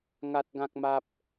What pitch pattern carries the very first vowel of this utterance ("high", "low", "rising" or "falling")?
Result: high